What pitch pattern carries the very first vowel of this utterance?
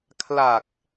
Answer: low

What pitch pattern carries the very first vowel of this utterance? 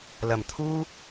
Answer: low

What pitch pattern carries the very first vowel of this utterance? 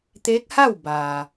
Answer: rising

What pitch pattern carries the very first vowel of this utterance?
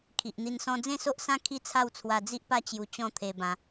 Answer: low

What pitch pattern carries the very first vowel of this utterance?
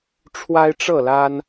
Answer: high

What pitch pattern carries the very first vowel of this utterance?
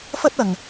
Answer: high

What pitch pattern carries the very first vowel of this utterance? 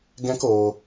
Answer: high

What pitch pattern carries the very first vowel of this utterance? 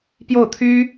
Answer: falling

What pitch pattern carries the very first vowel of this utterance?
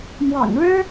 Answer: low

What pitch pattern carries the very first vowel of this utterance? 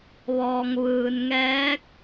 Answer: low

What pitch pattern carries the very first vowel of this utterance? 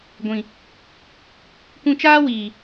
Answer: low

